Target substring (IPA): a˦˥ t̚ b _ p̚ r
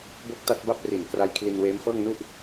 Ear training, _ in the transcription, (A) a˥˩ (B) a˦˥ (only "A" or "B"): A